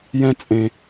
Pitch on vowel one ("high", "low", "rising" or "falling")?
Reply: high